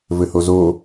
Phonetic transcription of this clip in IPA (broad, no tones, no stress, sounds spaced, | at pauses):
v ɘ h o z o